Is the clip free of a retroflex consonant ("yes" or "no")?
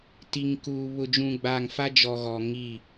yes